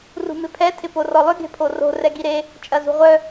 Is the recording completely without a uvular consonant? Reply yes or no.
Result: no